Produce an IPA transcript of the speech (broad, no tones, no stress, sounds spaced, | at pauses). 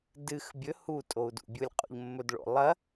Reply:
d ɨ x bʲ ɵ h u tʼ o u̯ d ṵ bʲ u lʲ qʼ o̰ ʎ mː ɵ d ɭ o̰ lˠ ɐ